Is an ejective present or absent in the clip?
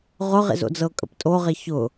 present